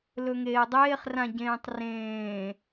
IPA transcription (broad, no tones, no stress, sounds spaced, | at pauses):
l ɵ ŋ eː dˤ eː χ r ã ɟ ẽː tˤ r ẽː